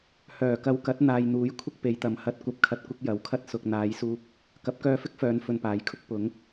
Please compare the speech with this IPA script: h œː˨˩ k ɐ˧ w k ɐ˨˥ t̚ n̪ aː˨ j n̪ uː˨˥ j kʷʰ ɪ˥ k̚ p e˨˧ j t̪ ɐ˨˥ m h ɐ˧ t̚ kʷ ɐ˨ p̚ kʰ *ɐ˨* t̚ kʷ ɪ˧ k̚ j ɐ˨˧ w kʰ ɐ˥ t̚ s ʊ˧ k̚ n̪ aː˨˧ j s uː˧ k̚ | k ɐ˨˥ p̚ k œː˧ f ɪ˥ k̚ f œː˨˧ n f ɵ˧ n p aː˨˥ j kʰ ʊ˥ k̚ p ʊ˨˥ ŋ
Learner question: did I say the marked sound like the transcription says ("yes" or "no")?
yes